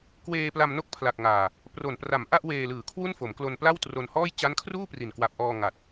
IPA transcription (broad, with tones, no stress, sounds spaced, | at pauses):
k w eː˧ p l a˧ m n o˥˩ k̚ pʰ l a˨˩ k̚ ŋ aː˨˩ | p r o˨˩ n p r a˨˩ m ʔ a˥˩ ʔ w eː˧ l ɯː˨˩ kʰ w u˥˩ n f o˩˦ m k l o˧ n p l a˥˩ w t r o˧ n h ɔː˥˩ j t͡ɕ a˦˥ n kʰ r uː˥˩ p r i˨˩ n k w a˨˩ p̚ ʔ ɔː˧ ŋ a˨˩ t̚